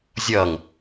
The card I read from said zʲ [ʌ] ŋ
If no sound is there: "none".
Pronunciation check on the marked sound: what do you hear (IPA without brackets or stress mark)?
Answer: ʌ